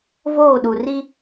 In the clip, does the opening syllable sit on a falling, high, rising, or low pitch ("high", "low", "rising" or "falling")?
falling